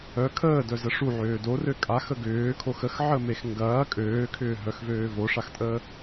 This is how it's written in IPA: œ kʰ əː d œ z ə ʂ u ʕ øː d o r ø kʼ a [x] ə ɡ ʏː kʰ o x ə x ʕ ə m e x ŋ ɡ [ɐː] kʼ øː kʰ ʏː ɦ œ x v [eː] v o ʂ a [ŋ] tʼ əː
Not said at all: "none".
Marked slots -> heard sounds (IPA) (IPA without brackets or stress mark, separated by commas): x, ɐː, øː, x